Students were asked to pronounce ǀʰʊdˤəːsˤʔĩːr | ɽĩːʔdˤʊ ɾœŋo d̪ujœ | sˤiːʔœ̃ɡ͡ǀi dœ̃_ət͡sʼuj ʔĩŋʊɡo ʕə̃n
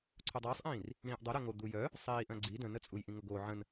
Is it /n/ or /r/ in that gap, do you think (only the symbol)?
n